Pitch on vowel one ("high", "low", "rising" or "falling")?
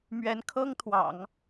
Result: rising